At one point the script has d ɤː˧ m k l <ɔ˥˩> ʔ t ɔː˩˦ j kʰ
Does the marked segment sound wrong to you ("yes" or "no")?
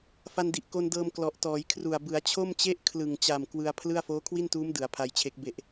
yes